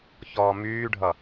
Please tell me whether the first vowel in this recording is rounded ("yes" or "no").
yes